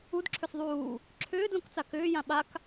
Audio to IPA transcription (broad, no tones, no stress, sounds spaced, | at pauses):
u d ǁʰ ʏ s ðˤ uː | ǁʰ ʏː d l õ k t͡s a k ʏː j ã ɓ a k